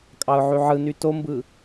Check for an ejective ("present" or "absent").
present